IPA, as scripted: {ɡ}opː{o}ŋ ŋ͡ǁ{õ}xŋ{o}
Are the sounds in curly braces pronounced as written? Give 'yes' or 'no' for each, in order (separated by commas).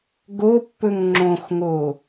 yes, no, yes, yes